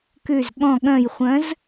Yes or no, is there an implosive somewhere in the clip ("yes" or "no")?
yes